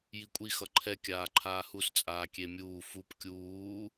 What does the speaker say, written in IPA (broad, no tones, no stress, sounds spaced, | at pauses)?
j i kʷʼ i x ʌ ǃʰ ɛ kʲ aː ǃʰ aː h u s t͡sʼ aː kʲ e mʲ uː f u p kʲ uː